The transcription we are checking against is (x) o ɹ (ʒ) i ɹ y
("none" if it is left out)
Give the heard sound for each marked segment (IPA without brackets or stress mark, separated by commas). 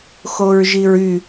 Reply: x, ʒ